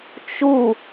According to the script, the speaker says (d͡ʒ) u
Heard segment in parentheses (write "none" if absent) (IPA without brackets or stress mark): t͡ʃ